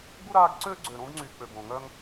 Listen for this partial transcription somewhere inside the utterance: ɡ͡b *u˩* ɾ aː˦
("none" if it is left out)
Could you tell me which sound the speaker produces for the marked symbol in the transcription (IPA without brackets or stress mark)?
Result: u˥